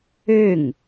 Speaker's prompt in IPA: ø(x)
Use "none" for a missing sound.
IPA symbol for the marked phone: ŋ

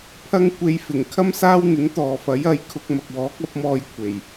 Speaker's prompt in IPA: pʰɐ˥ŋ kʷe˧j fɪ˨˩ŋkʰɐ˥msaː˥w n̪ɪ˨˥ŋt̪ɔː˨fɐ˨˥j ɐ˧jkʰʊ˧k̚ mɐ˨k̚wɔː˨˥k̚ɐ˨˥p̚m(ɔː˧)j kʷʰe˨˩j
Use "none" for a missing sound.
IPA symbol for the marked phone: ɔː˧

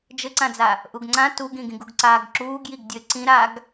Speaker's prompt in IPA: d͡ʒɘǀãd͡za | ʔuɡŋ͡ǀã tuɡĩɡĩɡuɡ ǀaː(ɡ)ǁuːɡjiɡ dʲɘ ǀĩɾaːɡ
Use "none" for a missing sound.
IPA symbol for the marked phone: ɡ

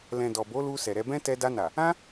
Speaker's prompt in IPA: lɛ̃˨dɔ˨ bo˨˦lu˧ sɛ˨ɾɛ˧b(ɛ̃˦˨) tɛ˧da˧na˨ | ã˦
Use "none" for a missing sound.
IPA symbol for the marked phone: ɛ̃˦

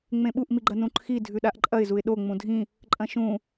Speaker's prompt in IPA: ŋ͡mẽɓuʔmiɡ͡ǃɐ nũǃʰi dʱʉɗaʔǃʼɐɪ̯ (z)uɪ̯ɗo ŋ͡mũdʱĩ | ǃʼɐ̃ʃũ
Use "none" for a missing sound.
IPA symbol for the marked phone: z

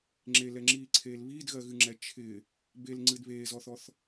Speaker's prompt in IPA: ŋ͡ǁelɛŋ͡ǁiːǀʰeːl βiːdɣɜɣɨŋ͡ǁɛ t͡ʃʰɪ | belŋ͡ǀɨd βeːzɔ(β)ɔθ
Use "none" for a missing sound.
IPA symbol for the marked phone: θ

